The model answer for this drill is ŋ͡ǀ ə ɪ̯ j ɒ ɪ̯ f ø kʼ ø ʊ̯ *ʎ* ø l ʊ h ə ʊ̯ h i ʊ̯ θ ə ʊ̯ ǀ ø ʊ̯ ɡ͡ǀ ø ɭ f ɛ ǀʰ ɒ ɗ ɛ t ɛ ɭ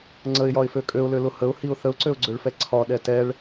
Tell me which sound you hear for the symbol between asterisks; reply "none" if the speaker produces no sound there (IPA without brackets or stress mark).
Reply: l